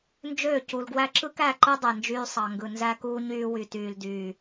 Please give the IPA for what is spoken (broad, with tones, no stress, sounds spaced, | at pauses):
n d͡ʒ øː˦˨ c u˨ l ɡ w æ˦ ǁ ɯ˦ k æ˦˨ ǃ ɯ˦ dˤ e˨ n d͡ʒ yː˦ sˤ ɑ˨ ŋ ɡ ɯ˨ n z æ˦ k uː˦ ɲ yː˦ w y˨ t yː˨ l d yː˨